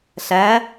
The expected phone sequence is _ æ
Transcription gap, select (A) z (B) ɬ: B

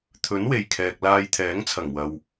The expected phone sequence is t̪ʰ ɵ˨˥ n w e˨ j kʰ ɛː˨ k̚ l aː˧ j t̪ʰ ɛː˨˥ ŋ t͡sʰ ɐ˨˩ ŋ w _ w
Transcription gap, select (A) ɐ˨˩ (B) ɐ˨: B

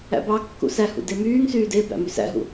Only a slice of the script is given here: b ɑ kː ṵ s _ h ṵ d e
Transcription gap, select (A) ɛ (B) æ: B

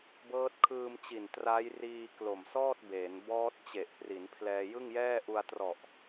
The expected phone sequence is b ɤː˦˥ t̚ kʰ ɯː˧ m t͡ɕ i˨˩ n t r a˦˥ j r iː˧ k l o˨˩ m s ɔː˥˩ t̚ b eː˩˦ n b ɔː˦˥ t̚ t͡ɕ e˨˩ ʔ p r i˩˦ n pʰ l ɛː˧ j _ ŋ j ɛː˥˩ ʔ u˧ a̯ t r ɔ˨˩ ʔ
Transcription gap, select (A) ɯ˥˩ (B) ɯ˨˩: A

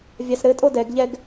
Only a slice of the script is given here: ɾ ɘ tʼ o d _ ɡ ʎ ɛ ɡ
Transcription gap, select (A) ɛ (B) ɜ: A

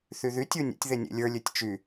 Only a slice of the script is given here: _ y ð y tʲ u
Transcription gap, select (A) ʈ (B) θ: B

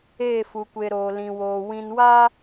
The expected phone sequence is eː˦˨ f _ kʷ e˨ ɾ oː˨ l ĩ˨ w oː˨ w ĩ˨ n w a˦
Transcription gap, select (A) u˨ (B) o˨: A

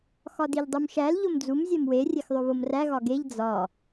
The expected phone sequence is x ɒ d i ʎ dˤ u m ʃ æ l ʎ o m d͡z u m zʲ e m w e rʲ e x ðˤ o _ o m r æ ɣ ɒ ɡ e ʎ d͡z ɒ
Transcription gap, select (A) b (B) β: B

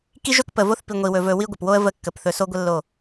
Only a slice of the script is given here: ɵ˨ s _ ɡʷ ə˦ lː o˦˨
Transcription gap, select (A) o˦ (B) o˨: A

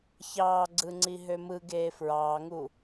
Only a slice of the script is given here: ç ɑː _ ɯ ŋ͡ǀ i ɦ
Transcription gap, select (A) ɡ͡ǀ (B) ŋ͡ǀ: A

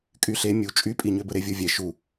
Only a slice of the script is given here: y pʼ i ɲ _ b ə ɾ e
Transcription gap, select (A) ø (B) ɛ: A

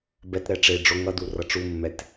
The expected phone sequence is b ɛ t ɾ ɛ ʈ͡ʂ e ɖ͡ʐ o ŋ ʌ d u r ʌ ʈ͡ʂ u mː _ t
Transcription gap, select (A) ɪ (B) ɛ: B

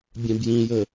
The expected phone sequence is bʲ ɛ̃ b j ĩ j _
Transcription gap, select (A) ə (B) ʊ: A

